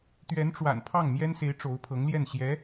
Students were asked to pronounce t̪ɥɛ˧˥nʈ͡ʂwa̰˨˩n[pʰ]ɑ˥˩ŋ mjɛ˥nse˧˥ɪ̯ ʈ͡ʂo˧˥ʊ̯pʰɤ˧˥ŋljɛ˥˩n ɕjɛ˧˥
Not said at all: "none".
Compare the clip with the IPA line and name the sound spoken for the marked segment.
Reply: pʰ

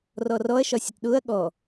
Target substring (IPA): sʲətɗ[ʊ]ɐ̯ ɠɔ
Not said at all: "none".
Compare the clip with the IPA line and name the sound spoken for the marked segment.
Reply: ʊ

